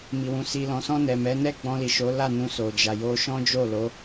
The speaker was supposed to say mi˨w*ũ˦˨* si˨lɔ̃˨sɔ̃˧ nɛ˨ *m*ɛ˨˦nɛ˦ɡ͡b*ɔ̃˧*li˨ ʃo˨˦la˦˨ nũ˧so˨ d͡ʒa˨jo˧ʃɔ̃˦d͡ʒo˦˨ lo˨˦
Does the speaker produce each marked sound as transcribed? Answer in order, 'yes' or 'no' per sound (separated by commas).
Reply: no, yes, yes